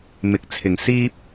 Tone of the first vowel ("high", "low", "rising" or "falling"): rising